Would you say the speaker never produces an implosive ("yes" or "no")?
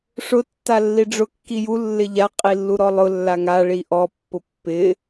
yes